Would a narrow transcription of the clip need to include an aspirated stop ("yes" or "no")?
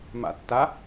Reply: no